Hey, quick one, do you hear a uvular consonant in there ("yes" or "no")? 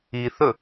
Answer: no